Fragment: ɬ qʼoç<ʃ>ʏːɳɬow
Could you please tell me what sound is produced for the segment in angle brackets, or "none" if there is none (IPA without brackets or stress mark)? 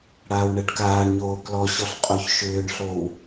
ʃ